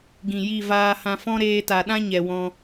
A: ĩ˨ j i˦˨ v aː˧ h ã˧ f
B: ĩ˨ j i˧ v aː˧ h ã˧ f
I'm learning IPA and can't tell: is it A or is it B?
A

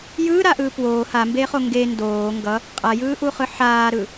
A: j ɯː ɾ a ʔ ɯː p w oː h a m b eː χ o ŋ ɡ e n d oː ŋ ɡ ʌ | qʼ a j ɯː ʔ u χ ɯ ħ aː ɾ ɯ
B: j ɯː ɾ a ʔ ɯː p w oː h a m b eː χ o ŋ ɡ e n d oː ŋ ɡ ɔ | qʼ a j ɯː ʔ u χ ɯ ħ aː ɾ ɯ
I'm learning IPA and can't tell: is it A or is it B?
A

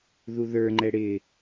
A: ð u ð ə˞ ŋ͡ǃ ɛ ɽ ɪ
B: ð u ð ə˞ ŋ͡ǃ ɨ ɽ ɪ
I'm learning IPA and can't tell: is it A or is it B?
A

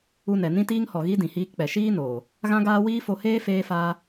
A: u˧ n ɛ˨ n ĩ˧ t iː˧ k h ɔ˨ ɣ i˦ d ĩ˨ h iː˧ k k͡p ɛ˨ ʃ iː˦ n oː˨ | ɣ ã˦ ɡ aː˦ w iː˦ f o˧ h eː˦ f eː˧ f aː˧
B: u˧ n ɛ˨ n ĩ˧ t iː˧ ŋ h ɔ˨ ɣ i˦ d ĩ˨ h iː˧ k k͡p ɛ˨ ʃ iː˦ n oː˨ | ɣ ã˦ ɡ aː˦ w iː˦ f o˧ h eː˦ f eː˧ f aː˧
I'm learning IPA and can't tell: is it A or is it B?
B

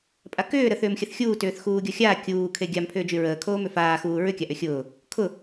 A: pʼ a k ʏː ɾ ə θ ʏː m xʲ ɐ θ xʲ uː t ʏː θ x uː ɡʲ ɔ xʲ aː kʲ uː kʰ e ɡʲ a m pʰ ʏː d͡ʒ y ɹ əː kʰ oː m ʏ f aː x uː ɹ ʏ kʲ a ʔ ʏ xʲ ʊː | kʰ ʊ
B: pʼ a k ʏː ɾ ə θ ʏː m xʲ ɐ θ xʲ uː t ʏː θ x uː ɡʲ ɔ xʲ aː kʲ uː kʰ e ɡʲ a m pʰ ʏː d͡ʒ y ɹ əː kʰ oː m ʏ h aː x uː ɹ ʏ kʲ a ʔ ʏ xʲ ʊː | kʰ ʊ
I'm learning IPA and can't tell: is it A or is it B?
A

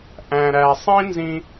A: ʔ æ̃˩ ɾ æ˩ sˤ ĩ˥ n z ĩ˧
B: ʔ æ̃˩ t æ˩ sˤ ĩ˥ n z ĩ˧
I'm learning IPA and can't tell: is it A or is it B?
A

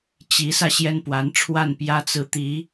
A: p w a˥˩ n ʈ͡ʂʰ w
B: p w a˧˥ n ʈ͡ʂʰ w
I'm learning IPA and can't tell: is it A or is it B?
B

